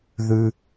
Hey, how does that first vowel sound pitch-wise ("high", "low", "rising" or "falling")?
low